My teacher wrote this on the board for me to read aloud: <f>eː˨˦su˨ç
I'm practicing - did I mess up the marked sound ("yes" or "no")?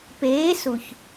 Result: yes